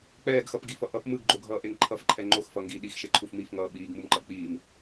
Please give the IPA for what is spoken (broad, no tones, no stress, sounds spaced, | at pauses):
k͡p ɛː ɡ x ʌ p ɡ i f ʌ ʔ ʌ p m ɯ ɡ ɡ͡ǃ o ɡʱ ʌː ʔ e ŋ ǃʰ ʌ f ǃʰ ɛ ŋ͡ǃ o x f ʌ ŋ ɡ iː ɗ i x ʃ e ǃʰ u f m i f ŋ ʌː ɓ iː ɡ m u m ǃ ʌ k͡p iː m